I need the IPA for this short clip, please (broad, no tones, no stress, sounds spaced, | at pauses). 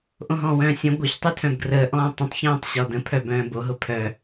ʔ õ ɦ ɔ̃ː w œ̃ː sʲ ə̃ ɡʷ ɜ ç tˤ y tʰ œ̃ b ɡ r əː ʔ ɔ̃ː tˤ ə̃ tˤ ç œ̃ː tˤ ɕ ɔ d ə̃ pʰ œ b œ̃ː b o ɦ ʊ pʰ œ